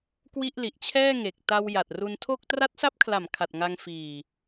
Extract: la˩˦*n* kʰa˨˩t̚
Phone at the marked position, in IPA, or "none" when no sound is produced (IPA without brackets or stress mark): m